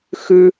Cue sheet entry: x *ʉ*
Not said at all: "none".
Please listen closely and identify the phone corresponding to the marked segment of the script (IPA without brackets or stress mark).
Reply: ʉ